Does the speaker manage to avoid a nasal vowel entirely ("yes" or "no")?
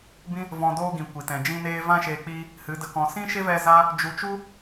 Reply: no